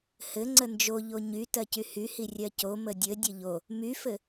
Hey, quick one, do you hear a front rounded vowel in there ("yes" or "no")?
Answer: yes